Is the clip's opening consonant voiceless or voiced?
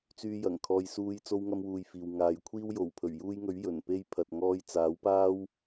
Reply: voiceless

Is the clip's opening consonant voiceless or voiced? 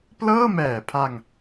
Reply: voiceless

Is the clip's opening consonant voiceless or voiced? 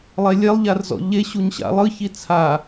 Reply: voiced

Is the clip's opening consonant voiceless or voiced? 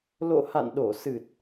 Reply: voiced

